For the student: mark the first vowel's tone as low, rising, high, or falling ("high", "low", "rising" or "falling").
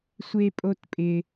high